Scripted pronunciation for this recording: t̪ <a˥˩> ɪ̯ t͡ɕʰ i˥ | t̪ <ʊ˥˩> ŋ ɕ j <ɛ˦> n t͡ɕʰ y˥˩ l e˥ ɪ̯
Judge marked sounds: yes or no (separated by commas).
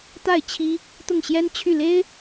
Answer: yes, yes, no